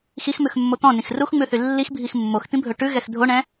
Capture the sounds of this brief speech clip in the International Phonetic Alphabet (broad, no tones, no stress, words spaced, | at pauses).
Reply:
xixmʉxmːo t̪ɔ̃nĩx ruxŋ͡mʉθy lːixbʱix mːoxt̪ĩbʱɵ ʈʉɣɛx dʱoɳɛ̃